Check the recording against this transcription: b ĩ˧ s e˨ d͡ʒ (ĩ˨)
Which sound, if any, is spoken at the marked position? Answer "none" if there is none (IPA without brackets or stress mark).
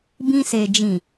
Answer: ĩ˨